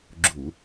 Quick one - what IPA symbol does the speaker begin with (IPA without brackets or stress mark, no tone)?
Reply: ɡ͡ǁ